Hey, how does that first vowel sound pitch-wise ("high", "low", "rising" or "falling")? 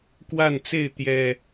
falling